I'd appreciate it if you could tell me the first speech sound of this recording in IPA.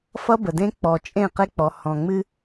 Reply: f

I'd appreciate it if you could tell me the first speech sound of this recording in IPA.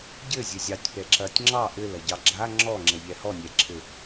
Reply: ɟ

